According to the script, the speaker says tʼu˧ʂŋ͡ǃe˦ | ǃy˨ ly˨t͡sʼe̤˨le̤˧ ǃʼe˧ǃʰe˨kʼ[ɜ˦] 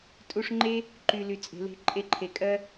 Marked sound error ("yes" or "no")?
no